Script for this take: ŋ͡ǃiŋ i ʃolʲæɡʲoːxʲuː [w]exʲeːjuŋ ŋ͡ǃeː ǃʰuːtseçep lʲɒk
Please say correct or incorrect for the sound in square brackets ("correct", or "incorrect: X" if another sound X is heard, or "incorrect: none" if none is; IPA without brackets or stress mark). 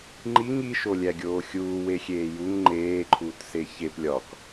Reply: correct